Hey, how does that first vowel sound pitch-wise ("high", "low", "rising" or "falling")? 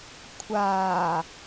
low